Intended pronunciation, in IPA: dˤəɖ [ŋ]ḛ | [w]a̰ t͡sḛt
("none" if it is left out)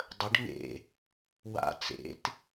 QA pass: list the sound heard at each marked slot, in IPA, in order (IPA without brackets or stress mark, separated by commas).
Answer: ŋ, w